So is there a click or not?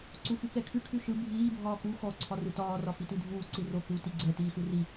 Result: yes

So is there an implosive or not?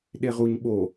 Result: yes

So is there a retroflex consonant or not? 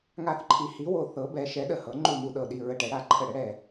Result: yes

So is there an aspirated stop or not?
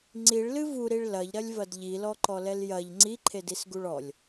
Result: yes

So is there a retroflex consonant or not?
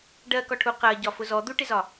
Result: yes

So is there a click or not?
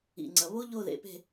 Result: yes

